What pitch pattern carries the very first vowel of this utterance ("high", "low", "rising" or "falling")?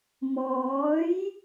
rising